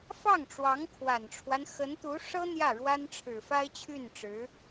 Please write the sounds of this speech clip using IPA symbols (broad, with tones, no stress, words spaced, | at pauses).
fɑ˥˩ŋʈ͡ʂwɑ˧˥ŋkʰwa˨˩nʈ͡ʂʰwa˦n xə˧˥nt̪u˧˥ʂɤ˥ n̪jä˥˩ɻwa˥nʈ͡ʂʰɻ̩˨˩ fa˥ɪ̯t͡ɕʰy˥˩nʈ͡ʂɻ̩˧˥